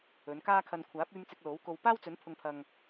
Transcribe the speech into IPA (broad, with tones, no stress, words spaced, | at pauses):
ɵ˨˧nkaː˥kʰɐ˧n kʷʰaː˨˥p̚yː˧m t͡sɪ˧k̚lo˨˥wko˧w paː˥wt͡sɵ˨˥n pʰʊ˧ŋpʰɐ˧ŋ